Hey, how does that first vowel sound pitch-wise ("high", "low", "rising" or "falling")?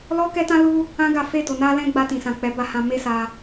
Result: high